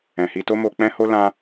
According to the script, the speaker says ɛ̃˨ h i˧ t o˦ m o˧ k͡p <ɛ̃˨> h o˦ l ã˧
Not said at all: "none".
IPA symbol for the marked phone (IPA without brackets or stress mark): ɛ̃˦